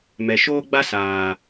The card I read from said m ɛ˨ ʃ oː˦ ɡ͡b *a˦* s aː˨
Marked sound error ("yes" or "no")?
no